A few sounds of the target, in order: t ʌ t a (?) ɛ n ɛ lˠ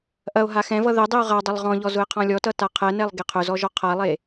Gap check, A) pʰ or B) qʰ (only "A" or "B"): B